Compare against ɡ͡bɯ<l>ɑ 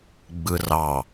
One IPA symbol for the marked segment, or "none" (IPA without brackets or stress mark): r